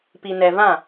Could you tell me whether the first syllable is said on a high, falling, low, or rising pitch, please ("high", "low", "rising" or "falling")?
low